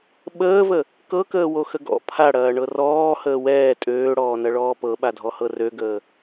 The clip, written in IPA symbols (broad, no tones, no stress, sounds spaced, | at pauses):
ɓ əː v ə | k ɤ k əː w o x ə ɡ ɔ̰ pʰ a ɽ ɐː ɳ ɤ r ɔː h əː w ɛː tʼ øː ɽ ɔː n ɐ ɭ ɔː p ɤ ɓ a dʱ ɔ h ɤ r ø ɡ əː